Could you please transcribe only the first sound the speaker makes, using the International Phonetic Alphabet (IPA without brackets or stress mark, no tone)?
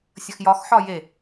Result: sʲ